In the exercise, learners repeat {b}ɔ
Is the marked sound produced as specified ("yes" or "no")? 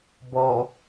yes